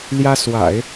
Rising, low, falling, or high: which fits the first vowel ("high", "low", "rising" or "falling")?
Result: high